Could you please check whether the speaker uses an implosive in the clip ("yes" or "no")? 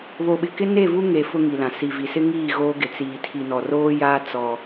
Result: yes